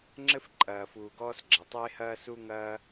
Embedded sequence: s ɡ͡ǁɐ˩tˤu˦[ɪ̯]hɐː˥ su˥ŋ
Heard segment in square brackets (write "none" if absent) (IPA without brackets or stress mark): ɪ̯